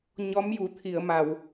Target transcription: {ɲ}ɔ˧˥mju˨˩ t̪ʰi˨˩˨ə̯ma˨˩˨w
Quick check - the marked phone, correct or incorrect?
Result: correct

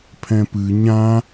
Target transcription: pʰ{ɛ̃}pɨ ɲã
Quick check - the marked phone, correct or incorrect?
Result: correct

